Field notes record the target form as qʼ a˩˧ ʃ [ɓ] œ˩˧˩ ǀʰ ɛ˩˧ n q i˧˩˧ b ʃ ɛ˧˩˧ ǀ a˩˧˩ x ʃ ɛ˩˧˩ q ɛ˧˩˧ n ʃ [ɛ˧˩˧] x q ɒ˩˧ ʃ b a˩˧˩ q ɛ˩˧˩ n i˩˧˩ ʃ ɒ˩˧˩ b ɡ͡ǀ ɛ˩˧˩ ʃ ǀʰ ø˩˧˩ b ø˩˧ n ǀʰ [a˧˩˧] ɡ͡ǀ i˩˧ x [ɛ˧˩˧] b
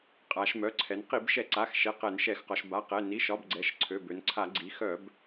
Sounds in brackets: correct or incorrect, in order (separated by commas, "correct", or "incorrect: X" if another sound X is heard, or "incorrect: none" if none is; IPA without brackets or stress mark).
incorrect: m, correct, correct, incorrect: œ˧˩˧